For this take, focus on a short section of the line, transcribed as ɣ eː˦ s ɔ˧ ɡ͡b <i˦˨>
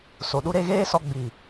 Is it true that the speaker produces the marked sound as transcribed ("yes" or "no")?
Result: no